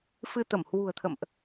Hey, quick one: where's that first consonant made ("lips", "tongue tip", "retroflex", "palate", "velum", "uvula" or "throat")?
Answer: lips